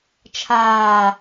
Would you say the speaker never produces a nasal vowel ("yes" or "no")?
yes